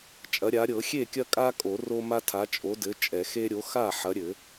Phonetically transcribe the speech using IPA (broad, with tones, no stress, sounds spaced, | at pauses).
t͡ʃʼ ɐ˨˥ ɾʲ a˨˥ ɾʲ ɤ˨˩˦ xʲ e˥˩ kʲ ɐ˦ kʼ a˦ kʼ o˨˩˦ r o˦ m a˦ tʰ a˨˥ t͡ʃʼ o˨˥ d ɘ˨˥ t͡ʃʼ ɛ˨˩˦ x e˦ ɾʲ o˨˥ x a˥˩ ħ ɐ˨˥ ɾʲ ɘ˨˩˦